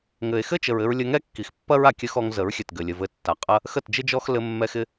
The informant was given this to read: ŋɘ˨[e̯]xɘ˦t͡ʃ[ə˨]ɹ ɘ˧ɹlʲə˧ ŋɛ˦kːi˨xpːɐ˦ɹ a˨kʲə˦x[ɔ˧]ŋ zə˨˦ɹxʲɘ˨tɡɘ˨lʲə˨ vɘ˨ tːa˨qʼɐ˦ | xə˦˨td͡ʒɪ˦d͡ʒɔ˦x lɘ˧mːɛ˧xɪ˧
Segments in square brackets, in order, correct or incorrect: correct, correct, correct

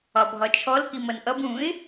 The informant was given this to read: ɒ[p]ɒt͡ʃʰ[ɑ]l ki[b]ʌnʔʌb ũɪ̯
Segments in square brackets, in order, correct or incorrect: incorrect: bʱ, incorrect: ɔ, incorrect: m

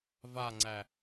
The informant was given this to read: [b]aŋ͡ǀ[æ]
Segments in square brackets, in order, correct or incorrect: incorrect: v, correct

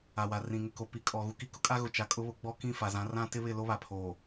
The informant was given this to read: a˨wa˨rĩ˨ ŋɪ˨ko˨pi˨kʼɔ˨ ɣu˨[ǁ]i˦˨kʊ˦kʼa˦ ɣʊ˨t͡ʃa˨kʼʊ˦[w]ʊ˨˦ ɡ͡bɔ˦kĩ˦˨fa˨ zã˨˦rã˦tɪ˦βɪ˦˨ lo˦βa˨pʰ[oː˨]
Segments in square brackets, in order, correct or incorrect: incorrect: k, incorrect: β, correct

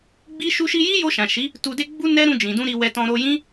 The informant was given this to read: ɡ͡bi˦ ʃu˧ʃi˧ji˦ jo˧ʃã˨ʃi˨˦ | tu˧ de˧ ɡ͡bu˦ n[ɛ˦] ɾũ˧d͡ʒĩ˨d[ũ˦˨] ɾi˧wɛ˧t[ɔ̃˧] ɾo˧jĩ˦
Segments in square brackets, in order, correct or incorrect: correct, incorrect: ũ˧, correct

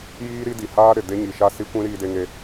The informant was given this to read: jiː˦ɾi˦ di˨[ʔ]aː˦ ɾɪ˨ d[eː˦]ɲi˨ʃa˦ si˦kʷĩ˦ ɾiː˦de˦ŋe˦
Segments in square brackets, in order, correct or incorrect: incorrect: h, incorrect: e˦

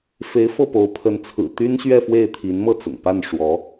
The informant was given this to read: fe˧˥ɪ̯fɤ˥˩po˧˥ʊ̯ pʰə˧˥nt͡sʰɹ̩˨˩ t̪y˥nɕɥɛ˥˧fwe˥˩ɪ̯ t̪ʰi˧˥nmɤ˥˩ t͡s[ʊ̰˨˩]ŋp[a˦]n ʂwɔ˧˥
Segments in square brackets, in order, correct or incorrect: correct, incorrect: a˥˩

